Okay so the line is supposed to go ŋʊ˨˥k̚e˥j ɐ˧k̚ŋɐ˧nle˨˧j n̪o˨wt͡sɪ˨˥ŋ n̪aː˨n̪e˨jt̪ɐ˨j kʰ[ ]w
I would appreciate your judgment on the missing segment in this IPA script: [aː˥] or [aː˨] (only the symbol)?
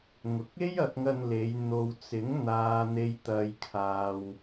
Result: aː˨